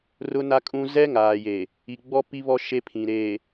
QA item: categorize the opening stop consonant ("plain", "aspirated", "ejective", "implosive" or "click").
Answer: ejective